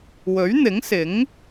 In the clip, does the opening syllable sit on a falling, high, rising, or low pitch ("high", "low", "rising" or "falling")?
rising